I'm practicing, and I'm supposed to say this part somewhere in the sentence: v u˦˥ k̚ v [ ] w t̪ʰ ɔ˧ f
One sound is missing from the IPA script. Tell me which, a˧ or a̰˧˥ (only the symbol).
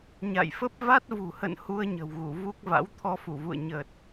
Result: a̰˧˥